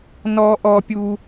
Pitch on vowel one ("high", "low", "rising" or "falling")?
high